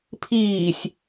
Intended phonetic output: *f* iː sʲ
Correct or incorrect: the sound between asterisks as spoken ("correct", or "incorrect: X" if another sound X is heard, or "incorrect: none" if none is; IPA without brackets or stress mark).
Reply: incorrect: pʰ